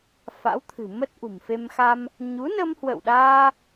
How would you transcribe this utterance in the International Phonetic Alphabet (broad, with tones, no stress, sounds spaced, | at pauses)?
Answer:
f a̰˧˥ w t̪ʰ ɨ̤˨˩ m ə˦˥ t̚ ʔ ṳ˨˩ m f e˧ m x a˧ m | ɲ u˨˦ n ə˧ m h w ə̰˧˨ w ɗ aː˧